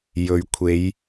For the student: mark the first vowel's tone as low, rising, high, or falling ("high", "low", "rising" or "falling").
low